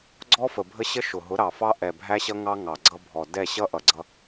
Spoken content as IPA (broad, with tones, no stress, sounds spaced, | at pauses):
ɡ͡ǀ ɔ˦ f ə˨ bʱ ə˦ ɕ ə˦ ʃ ʊ˨ ɦ ʊ˨˦ ɾ ɑ˨ f ɑ˦ ʔ ɛ˨ bʱ æ˦ ɕ ʌ˦ ŋ ɑ˦ ŋ ɑ˨ ɡ͡ǀ ʌ˦ bʱ ɔ˨ d ɛ˦˨ ɕ ʌ˦ ʔ ʌ˨ ɡ͡ǀ ʌ˦